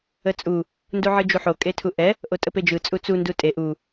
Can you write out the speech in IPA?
ə t͡sʼ u | n d u ʕ ɯ d͡ʒ u ħ o kʼ e tʰ u ʔ ɛ | ʔ o tʼ ə p e d͡ʒ ɯ t͡sʼ u t͡s u n d u tʼ e ʔ u

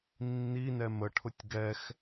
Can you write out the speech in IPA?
nː i n ɛ m ə ʈʰ ʊ tʲ ɡ ɛ x

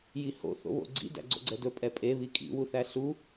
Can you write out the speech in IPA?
j i h o̰ θ o̰ β o̰ ɡ͡ǀ ḭ d æ̰ ɡ͡ǀ o̰ ɡ͡ǀ ɛ d ɵ pʼ ɛ pʼ e β i kʼ ḭ w u θ æ ɬ u

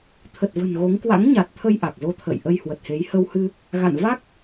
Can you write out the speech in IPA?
t̪ʰ ə˨˩ t̚ v ə̤˨˩ n ɣ o˨˦ ŋ k w a̰˧˥ ŋ ɲ a˨˩ t̚ t̪ʰ ə˧ j ʔ a˨˩ k̚ z o˧ t̪ʰ ə̰ː˧˨ j ʔ ə˧ j h w ə˨˩ t̚ h e˨˦ j h ə˧ w h ɨ˧ | ɣ a̰˧˨ n v a˦˥ k̚

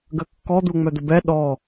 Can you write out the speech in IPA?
ɡ ə kː ɔ d̪ u ŋ͡m œ d̪ ə b ɛ ɗ ɔ

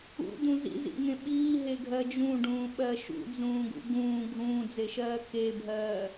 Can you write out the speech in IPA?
ṵ d̪ ũ z ḭ z ḭ ŋ ẽ ɓ iː ɦ e ɡʱ ɜ d͡ʒ ũ ɖ ũː ɓ ɜ ʃ ṵ d͡z ũː ɡ ṵ ɡ ũː ɡʱ ũː d͡z e ʃ ɜː k e bʱ ɜː

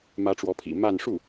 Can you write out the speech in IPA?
m ä˧˥ ʈ͡ʂ w ɔ˧˥ pʰ ḭ˨˩ m a˥˧ n ʂ u˥˩

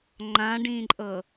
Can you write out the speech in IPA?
ŋ͡ǃ ã ɖ ĩ ǃʼ ɤ

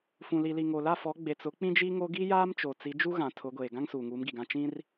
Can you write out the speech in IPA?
f ũ˨ l i˨ l i˨ ŋ o˨ l a˦˨ f ɔ˨˦ ɡ͡b e˨ t͡s ʊ˨˦ k͡p ĩ˦ d͡ʒ i˦ ŋ o˦ ɡ i˦ j aː˦ m t͡ʃ o˨ t͡s i˨˦ d͡ʒ u˦ ɣ ã˨ tʰ ʊ˨˦ ɡʷ eː˨ ɡ ã˦ ŋ s uː˨ ŋ uː˨˦ m ɡ i˨ ɡ ã˦˨ t͡ʃ ĩ˦ r

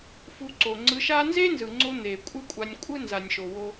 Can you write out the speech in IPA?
f u˧ ǀ o˨ ŋ͡ǀ ɯ˧ ʃ a˦ n z e˦ n z ɯ˨ ŋ͡ǀ o˧ n̪ e˨ kʷʼ ɯ˦ kʷʼ a˧ nʲ kʷʼ ɯ˦ n z a˨ nʲ ʃ o˨ w o˦

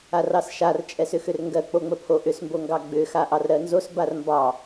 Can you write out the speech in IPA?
a r ɑ s ʃ a r t͡ʃʼ ɛ s ʏ x ʏ r ŋ ɡ ɜ k͡p o ŋ͡m ə pʰ o ʔ ʏ s m b o ŋ ɡ ɑ ɡ͡b ʏ x a ʔ ɑ r ɾ ɜ n z o s b a r m b ɑ

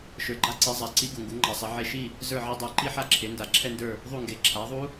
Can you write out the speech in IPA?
ʃ ə˞˨ ɡ͡ǃ a˦˥ ǀ i˩˥ zˤ a˩˥ ǀ i˦˥ ɡ u˨ ŋ ɡ u˩˥ ŋ͡ǃ a˨ sˤ ɛ˩˥ ʕ e˥˨ ʃ i˥˨ | z ə˞˥˨ ʕ e˦˥ dˤ ə˞˩˥ ǃ i˦˥ ħ a˥˨ ǁʰ e˩˥ n d a˨ ǁʰ ɛ˥˨ n d ə˞˥˨ | ðˤ u˥˨ ŋ ɡ e˩˥ ǁʰ a˩˥ ðˤ u˦˥

